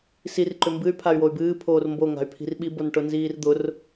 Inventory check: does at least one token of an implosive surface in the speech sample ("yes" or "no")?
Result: yes